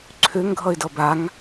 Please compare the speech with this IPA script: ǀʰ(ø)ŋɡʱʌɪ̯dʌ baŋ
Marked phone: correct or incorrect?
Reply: correct